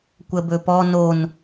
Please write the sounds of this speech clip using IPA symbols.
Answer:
kʷ ə b ɵ p ɔ n o n

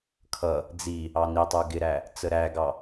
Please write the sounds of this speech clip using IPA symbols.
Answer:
kʰ ʌ | d͡z i | ɑ n i tˤ ə˞ ɡ ɪ ɾ æ | t͡s ə ɾ æ ɡ ɑ

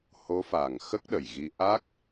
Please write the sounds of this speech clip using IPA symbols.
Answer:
h o˧˥ f a˨˩ ŋ x ə˦˥ k̚ ɗ ə˨˩ j ɣ i˧ ʔ a˦˥ k̚

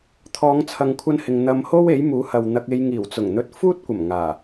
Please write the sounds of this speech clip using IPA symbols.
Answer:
t̪ʰ ɔː˨˧ ŋ t͡sʰ ɐ˨ ŋ kʷʰ ɐ˥ n h ɪ˧ ŋ n̪ ɐ˧ m h o˥ w e˨˥ j m uː˨˥ h ɐ˨ w n̪ ɐ˧ k̚ e˧ j ŋ iː˨˩ w t͡s ʊ˨˩ ŋ n̪ ɵ˧ t̚ f uː˥ t̚ kʷ ɐ˨˩ m ŋ aː˨˩

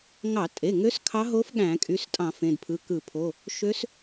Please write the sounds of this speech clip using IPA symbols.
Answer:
ŋ ɑ˧˩˧ tʼ e˩˧˩ ŋ ø˧˥ s kʰ ɑ˧˥ ɦ o˧˥ f ɠ æ̃˧˩˧ kʼ y˩˧˩ s tʼ ɑ̃˧˩˧ f ẽ˩˧˩ d pʰ ɯ˩˧˩ k ɯ˧˩˧ pʰ o˩˧˩ | ʃ ø˧˥ s

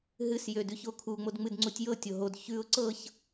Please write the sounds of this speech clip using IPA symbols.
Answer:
ɦ ɨ s j ø d ʉ ç o kʰ u ŋ͡m o d ŋ͡m ɨ d ŋ͡ǀ u tʲ j ɤ tʲ o ɦ o d ç ʉ ʊ̯ ǀ ɤ ç

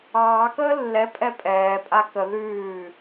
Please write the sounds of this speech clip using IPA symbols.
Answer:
ɑː k əː lː ɛ pʼ ɛ pʼ ɛː pʼ a k ə ð ʉː

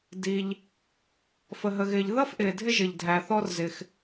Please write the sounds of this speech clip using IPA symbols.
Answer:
d i˩ ʎ | f ə˩ ɦ ə˩ ɣ ɪː˩ ʎ ð ʌ˥ f ʔ ɪː˩ dʱ ɪ˥ ʒ ɪ˩ ʎ dʱ æ˩ θ ɔ˥ r z ɪ˩ x

